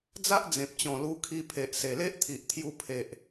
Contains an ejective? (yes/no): no